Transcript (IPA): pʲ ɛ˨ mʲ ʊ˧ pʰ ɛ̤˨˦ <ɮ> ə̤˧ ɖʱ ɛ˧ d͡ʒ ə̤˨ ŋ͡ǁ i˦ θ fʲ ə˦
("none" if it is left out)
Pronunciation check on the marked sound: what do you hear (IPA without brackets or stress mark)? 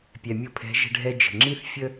ʒ